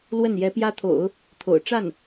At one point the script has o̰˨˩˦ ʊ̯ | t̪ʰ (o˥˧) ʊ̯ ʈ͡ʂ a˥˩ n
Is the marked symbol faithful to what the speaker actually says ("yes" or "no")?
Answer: no